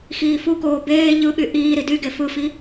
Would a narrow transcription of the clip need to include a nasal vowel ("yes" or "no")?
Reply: no